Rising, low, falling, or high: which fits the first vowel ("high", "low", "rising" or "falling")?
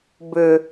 low